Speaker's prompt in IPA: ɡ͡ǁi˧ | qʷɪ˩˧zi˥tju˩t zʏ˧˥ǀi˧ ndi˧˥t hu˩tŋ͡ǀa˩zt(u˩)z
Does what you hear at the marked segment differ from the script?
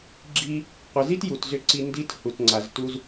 yes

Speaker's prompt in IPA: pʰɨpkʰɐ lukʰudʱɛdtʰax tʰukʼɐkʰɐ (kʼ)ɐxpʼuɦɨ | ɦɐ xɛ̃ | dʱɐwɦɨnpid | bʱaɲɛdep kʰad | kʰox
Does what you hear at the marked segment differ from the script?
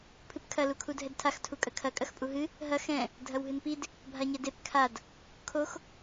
no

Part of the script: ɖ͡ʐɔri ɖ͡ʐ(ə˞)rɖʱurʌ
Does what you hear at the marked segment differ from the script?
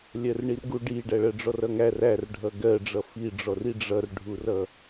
yes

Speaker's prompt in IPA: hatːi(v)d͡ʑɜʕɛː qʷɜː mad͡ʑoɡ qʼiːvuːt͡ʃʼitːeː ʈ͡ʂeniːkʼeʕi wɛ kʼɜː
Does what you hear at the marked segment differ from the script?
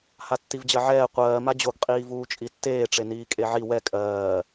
no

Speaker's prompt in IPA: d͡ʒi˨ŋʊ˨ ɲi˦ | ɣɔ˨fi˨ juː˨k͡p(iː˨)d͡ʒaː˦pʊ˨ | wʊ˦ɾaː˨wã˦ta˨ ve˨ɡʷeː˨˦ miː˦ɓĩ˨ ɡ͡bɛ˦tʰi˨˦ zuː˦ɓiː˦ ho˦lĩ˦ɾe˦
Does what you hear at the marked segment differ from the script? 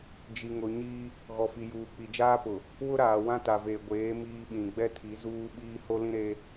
yes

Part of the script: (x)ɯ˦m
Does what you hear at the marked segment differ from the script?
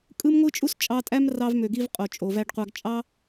yes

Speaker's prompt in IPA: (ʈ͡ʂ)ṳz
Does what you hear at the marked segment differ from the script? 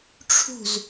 yes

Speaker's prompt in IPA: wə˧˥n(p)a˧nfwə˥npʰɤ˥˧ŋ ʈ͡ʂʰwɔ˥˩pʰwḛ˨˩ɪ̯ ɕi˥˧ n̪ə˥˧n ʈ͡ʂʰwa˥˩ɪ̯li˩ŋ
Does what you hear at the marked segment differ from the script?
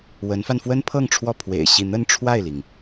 yes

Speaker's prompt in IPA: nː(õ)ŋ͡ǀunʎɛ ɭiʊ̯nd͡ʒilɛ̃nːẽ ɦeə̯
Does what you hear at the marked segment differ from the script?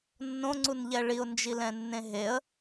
no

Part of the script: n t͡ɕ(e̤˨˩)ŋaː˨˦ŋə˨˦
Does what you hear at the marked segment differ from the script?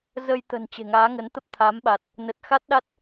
no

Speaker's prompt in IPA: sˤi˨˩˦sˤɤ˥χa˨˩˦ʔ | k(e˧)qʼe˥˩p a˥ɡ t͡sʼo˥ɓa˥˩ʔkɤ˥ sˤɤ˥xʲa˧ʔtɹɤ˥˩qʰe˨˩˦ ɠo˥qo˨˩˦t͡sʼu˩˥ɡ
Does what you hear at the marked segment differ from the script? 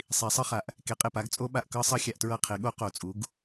no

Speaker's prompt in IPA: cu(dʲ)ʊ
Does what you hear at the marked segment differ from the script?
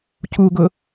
yes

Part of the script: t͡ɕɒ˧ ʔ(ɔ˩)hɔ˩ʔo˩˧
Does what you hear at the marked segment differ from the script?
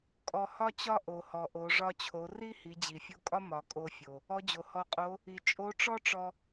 yes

